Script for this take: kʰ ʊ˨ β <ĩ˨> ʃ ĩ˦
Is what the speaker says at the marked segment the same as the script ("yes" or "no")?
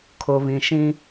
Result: yes